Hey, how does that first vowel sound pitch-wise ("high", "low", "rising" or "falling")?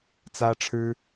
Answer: high